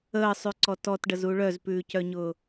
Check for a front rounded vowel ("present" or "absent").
present